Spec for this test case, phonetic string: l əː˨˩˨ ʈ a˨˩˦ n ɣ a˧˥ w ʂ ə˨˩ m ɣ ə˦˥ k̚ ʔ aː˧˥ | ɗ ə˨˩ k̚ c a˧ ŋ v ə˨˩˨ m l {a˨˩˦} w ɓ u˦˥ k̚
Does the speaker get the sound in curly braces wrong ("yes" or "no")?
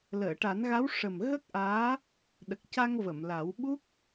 no